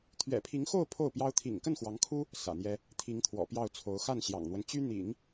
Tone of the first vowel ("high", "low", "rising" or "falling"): low